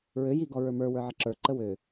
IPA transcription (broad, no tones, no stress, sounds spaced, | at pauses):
ɹ ø j i ɡ ɔ ɹ ə˞ m ə˞ w ə˞ ʕ ə ǁ ə˞ ǃ ə w ø